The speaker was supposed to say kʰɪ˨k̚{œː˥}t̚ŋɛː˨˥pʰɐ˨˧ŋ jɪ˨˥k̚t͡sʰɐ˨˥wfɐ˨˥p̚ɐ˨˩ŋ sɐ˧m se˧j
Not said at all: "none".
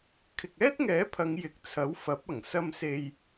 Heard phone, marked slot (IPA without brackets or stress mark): ɛː˥